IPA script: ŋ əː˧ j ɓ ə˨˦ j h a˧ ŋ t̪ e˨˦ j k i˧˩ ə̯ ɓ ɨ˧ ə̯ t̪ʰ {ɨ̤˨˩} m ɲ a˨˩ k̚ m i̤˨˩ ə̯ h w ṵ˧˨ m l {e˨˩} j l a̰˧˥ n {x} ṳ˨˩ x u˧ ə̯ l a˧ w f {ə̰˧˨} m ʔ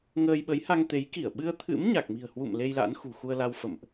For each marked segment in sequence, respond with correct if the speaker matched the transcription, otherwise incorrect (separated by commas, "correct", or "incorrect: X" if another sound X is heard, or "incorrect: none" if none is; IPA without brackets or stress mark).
incorrect: ɨ̰˧˥, incorrect: e˧, correct, correct